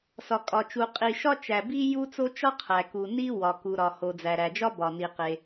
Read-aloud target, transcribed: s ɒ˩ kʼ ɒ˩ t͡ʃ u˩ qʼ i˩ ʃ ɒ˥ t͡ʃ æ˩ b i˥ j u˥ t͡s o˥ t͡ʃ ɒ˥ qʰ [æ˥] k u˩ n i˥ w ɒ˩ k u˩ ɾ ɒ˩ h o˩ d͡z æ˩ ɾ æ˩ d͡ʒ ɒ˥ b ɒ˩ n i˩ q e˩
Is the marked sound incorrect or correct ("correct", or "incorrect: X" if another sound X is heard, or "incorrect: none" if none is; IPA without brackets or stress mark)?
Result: incorrect: æ˩